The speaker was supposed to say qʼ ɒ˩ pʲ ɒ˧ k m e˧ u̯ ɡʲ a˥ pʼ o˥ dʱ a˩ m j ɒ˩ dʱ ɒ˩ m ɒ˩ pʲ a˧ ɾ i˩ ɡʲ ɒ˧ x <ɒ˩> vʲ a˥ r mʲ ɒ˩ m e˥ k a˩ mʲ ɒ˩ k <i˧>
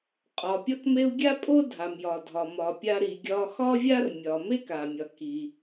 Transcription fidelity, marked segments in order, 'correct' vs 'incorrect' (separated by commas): incorrect, incorrect